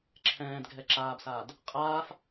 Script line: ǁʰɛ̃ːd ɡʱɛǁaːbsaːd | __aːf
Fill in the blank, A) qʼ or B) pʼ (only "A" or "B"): A